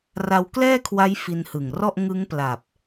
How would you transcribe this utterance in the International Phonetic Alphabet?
r a˧ w k l ɛː˥˩ kʰ w a˦˥ j f i˧ n h ɯ˨˩ ŋ r ɔ˥˩ ʔ ŋ ɯ˦˥ ŋ p l a˨˩ p̚

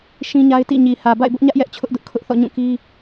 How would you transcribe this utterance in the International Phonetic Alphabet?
ʃ ĩ˦ ɲ a˦ ɪ̯ t ḭ˦˨ ɲ i˨ h ä˨ b a̰˦˨ ɪ̯ b ʊ˦ ʔ ɲ ä˦ ʔ j ɛ˦ ʔ t͡ɕʰ ʊ˦ ʔ d ʊ˦ ʔ kʰ ʊ˦ ʔ θ ɔ̰˦˨ ɲ ũ˦˨ k i˦

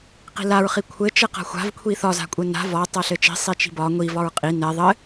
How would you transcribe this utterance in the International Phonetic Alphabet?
q i̤ l a ɹ χ i kʷʰ ɘ t͡ʃ ɘ q a̤ xʷ a̤ v kʷʰ i θ ɒ z a̤ kʷʼ ɘ n a̤ v ɒ tˤ a ɬ ɘ t͡ʃ i̤ sˤ i t͡ʃ i̤ b ɒ ŋʷ i v ɒ ɹ qʼ i n ɛ ðˤ ɘ

